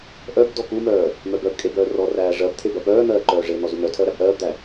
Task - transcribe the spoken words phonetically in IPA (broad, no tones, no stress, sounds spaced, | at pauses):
ʔ œ b d ɔ k u m œː | m œ b œ b kʼ e b œː r ɔ r æː ʐ ɜ b t̪ʰ e b ɜ p œː n̪ ɜː ǃ œː ʐ e n̪ ɔ z u n̪ œ tʰ ɜ ɾ æ b ʔ ɜː b d̪ æ